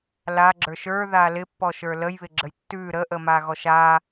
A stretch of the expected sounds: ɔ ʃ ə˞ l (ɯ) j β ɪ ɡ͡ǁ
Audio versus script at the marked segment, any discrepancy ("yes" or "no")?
yes